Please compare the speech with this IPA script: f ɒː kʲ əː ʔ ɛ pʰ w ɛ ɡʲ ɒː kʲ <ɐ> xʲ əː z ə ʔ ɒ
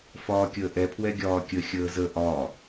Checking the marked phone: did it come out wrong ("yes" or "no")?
yes